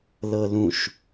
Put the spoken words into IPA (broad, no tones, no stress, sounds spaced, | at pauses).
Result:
l ɤ l ũ ʃ